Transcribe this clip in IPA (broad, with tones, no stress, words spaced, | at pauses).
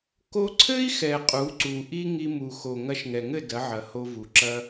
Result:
ko˧ǀʰɘ˦i̯xɛ˨ qʼu˨˦ǀu˨ʔi˦ ŋi˧mu˨xo˨ ŋɐ˧ʃŋɛ˨ŋɘ˦˨ dɐ˨˦ʕɐ˨ho˧vu˨ ǁɐ˧